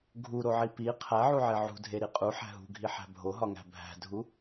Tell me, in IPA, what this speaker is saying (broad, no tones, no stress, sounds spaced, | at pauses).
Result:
ɡʱ u ɾ o ʕ i p i qʰ æ ʕ u ʕ e ʕ ṳ dʱ e ɾ i qʼ u ħ æ̤ ɦ ṳ ɡʱ i ħ æ̤ bʱ o ɦ ɒ ŋ æ̤ bʱ æ̤ dʱ u